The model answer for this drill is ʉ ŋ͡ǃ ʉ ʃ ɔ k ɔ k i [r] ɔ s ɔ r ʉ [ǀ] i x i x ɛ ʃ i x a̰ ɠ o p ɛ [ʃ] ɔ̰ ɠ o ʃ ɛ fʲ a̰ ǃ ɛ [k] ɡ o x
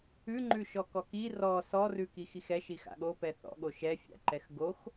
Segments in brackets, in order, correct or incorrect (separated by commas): correct, incorrect, incorrect, incorrect